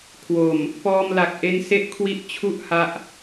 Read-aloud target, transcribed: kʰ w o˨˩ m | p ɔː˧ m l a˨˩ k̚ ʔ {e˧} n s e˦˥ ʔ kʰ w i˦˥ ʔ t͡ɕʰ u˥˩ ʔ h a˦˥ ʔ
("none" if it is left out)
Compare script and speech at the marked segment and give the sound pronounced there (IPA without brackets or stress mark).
e˧